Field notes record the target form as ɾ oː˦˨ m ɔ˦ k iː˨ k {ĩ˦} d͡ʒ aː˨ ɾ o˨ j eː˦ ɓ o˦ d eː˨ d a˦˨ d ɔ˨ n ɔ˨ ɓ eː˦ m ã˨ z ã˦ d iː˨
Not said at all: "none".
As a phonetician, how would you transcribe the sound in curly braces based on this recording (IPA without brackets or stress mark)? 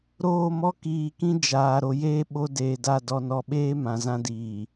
ĩ˦